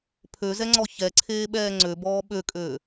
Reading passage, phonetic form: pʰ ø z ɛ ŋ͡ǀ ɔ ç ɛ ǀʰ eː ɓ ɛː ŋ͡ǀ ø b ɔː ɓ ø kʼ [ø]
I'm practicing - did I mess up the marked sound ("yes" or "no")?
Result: yes